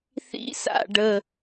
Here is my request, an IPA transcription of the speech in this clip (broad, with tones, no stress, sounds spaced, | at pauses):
θ ḭ˧ s a̰˨ ɖ ə˨